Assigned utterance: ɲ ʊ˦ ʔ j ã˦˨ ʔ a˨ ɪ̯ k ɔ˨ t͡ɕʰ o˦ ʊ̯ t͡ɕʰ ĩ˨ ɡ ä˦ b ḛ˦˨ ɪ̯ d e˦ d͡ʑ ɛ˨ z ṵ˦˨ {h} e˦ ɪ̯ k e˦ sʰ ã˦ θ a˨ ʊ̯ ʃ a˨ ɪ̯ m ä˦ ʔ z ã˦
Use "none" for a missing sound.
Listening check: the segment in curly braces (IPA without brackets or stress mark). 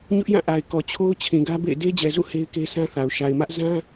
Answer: h